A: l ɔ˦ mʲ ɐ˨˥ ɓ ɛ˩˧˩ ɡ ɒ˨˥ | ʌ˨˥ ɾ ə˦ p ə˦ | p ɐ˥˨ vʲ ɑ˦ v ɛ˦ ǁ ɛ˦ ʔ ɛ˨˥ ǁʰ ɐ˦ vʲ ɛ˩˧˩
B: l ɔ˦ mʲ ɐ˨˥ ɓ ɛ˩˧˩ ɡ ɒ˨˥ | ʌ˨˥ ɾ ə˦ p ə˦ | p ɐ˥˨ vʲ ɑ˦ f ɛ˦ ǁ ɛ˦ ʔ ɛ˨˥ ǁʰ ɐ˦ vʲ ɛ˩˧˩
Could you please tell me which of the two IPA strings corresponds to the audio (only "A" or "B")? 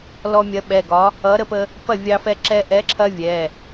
B